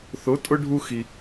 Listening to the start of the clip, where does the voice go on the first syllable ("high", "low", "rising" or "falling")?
rising